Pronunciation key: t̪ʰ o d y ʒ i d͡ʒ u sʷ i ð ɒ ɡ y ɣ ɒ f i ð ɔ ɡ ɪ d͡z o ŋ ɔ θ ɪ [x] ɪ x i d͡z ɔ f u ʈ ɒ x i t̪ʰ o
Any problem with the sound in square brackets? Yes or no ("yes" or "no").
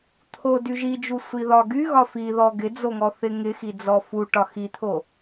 yes